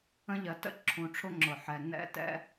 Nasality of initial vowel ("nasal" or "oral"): nasal